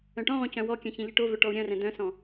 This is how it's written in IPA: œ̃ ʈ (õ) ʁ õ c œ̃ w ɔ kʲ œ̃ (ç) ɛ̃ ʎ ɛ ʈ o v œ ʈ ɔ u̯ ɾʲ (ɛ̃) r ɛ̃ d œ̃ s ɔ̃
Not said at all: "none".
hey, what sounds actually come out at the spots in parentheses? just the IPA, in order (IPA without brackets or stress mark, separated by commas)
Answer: ɔ̃, ç, œ̃